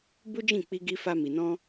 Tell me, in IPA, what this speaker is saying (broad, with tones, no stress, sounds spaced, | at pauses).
b u˦ d͡ʒ ĩ˦˨ k͡p i˧ ɡ i˧ f a˧ m i˨ n ɔ̃˧